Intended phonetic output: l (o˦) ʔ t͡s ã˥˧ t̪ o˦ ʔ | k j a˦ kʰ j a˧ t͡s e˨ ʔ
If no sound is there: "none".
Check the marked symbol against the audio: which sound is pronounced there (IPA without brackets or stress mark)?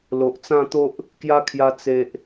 o˨